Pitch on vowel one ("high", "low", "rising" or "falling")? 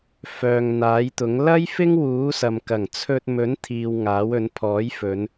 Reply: low